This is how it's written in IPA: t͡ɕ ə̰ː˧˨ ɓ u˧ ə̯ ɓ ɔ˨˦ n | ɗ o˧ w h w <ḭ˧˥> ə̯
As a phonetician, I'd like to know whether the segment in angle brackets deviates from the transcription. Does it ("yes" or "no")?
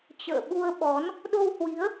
yes